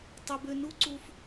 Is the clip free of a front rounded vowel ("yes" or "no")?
no